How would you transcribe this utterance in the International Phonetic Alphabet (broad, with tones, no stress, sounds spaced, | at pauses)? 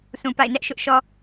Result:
s ũ˨ p a̰˦˨ ɪ̯ n ɛ˦ ʔ ʃ ʊ˦ ʔ ʃ ɔ˦